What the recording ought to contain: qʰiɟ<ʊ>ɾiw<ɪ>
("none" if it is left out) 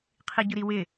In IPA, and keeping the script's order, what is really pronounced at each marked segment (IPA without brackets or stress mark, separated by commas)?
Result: ʊ, ɪ